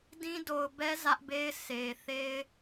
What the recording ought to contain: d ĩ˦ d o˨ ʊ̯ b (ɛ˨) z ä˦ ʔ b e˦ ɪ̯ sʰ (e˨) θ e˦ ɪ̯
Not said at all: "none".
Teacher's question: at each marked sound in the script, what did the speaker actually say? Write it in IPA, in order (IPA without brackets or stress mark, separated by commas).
ɛ˦, e˨